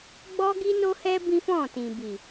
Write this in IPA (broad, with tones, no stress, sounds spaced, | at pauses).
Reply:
ɡ͡b ɔ˦ ɡ i˦ n o˦ h ɛ˦ b ĩ˦ f ɔ̃˦˨ t ĩ˨ b i˨